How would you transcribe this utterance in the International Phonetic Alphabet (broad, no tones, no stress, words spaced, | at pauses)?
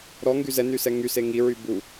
ɾɔŋɡy zɛnysɛ ŋyse ŋiɹy bu